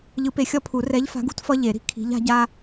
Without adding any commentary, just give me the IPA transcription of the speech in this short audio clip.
ʎɯ˨˦pe˨˦xʲʌ˦pʰu˨˩˦ rɛ˨˦ʎfa̤˨˦ɡṳ˦t fʌ˦ʎe˨˩˦ɾi̤˨ kʰi̤˨˦ʎa̤˨˦ɟa˦

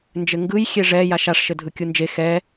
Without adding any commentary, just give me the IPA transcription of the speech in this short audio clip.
nd͡ʒɘŋɡɯj xʲeʐɛ jaʃaʂʃɘ dʱɯkʲund͡ʒe xɛ

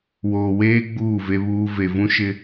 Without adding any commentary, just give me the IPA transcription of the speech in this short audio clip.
woː˨weː˦ ɡ͡buː˦˨ve˦βuː˦ ve˨vũ˦ʃɪ˦

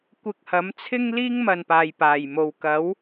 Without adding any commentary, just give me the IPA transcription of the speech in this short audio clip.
kʷɪ˧k̚hɐ˨˥mt͡sʰɪ˥ŋ liː˥ŋmɐ˨n paː˨jpaː˨˩jmo˨w kɐ˨˥w

